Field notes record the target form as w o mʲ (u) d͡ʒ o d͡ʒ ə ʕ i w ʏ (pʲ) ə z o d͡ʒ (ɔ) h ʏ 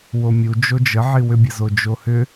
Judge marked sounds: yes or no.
yes, no, no

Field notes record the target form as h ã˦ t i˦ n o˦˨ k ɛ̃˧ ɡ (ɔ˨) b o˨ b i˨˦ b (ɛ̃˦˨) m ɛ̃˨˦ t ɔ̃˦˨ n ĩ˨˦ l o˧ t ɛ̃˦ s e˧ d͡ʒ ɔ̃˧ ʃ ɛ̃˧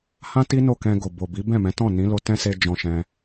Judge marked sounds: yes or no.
no, yes

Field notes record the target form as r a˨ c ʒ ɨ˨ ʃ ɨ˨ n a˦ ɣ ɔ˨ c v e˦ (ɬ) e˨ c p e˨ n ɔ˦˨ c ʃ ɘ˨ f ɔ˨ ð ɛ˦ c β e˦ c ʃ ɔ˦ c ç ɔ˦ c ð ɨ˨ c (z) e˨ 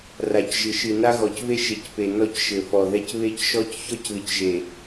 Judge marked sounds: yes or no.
no, no

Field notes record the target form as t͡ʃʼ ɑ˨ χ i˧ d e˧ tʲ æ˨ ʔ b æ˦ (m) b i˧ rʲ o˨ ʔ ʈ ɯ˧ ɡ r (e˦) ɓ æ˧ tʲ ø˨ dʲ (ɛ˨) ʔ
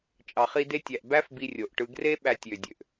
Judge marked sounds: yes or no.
no, yes, no

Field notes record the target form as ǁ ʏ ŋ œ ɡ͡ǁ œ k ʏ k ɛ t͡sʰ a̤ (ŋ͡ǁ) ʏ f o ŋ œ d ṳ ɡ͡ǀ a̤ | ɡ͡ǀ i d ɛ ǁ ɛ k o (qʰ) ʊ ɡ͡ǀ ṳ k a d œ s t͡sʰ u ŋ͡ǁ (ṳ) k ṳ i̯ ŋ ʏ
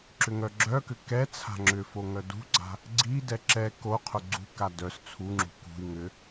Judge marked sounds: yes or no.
yes, yes, yes

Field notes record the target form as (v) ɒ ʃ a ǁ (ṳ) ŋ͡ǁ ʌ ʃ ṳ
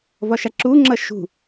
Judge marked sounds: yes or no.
yes, no

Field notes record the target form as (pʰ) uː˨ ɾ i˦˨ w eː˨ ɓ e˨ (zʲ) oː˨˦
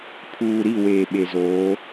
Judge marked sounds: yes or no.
yes, no

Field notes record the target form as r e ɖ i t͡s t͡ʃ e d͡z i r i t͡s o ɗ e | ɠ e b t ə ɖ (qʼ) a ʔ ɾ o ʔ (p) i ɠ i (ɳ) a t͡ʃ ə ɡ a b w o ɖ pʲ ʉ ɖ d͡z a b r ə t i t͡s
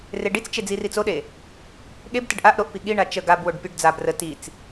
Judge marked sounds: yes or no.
no, yes, yes

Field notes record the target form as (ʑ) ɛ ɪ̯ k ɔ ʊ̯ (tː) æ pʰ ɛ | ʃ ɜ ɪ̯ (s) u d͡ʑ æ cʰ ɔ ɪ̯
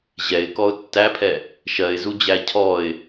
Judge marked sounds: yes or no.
yes, yes, no

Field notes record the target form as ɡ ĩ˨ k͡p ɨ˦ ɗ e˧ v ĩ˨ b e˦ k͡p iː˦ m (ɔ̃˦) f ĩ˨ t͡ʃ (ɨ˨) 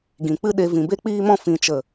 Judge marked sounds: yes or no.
yes, no

